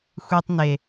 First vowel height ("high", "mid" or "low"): high